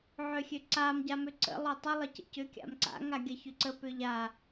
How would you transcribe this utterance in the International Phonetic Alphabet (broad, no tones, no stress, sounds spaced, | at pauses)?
ʕ ø xʲ ø ǀ a m ɟ a m ø ǀ ə̰ lˠ ʏ tˤ ə lˠ ə c ə̰ c ʏ kʲ a̰ m ǀ a̰ ŋ a ɡʲ ɐ ç ʏ ǀ ə p ʏ ʎ a